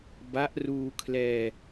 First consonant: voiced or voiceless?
voiced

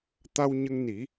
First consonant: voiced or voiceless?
voiceless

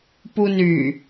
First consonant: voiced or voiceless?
voiceless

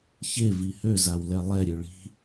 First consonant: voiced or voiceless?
voiceless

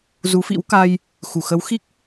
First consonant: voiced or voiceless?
voiced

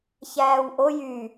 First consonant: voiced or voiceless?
voiceless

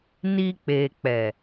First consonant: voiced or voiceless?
voiced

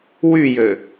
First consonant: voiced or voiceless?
voiced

